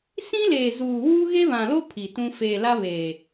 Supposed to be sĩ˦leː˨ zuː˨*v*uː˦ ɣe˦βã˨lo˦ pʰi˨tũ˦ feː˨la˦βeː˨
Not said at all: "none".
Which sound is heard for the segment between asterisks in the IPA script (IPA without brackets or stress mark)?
w